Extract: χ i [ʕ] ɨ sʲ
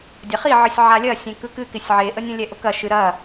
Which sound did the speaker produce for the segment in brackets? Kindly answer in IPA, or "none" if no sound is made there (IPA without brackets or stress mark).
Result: ʕ